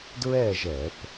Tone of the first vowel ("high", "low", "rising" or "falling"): falling